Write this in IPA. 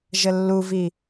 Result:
ʒəlːuvi

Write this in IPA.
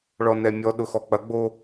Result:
ɭɔnɛmʲɔ ɗʊxɔk͡pɐɡ͡bo

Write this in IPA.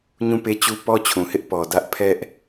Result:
ɲũ˦˨pe˦t͡ɕu˦ pɔ˦t͡ɕʰũ˨hɪ˦ʔ pɔ˨ dä˦ʔ pʰɛ˦ʔ

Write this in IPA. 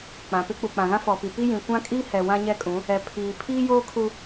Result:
k͡pã˨pɪ˦k͡pu˨ k͡pã˨ɣã˦fɔ˨pi˨ pi˦jĩ˨ kʷã˦kʼi˦hɛ˨ wã˦ɲɛ˦kʼũ˨˦ | ɛ˨pʰiː˨ pʰiː˦joː˦kʰu˦

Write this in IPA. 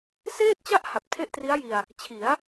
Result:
seː˥˩t̚t͡ɕa˥˩ʔ ha˨˩p̚tʰe˥˩ʔtri˦˥a̯ji˧a̯ | t͡ɕʰi˩˦a̯

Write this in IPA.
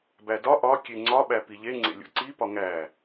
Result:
bædɒ ʔɒ kʲeŋ͡ǀɒ ɓæpiʎe ŋ͡ǀḛlʲo̰ǀi pɒŋæ

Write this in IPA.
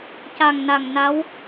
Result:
ca˨˩ŋna˨˩ŋna˧˥w

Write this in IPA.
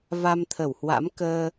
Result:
va˧mt̪ʰə˧˩whwa̰˧˥mkəː˧

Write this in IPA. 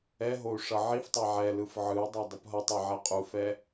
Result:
ɛɦou̯ ʂʌʕiftˤa ʕɛlɯf ʕɯu̯dˤa dˤɯpɦʌtˤʌ ʕɛqʼufɛ

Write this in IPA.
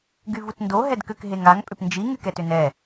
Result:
ɡyvutndo ɦɛdkʏk ɦeŋaŋ pʼʏpnd͡ʒi ŋykɛtʏnɛ

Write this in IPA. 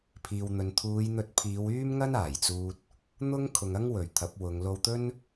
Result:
pʰiː˨wn̪ɵ˨n t̪ʰuː˨˧jn̪ɵ˧t̚pʰiː˨˧w yː˥mŋɐ˥n aː˨˩jt͡suː˥t̚ | n̪ʊ˥ŋ kʰʊ˨ŋɐ˥ŋ wɵ˨˩ɥt̪ʰɐ˨˥p̚wʊ˨˧ŋ lo˧wt̪ɵ˥n

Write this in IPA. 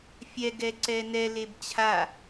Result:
fʲɛ ɡɛǀɛnɛ lebt͡ɕʰa

